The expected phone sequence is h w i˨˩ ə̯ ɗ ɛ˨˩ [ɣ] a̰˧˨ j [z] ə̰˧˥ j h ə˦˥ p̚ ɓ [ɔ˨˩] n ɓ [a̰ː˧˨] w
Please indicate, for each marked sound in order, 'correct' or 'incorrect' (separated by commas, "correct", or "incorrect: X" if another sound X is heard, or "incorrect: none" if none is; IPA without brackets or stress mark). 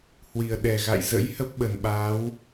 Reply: correct, correct, incorrect: ə˨˩, incorrect: aː˨˦